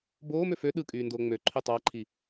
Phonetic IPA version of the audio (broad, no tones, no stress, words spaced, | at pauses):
boːmø fø ɗɯkʼyːndoː ŋ͡møǃʰy tˤɑǃʰi